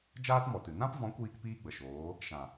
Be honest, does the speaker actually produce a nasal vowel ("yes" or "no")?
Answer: yes